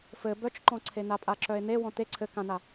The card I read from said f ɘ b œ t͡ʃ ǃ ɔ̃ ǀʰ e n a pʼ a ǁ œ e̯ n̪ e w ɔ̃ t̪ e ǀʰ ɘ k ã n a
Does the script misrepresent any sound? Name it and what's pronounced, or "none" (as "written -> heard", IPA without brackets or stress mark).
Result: none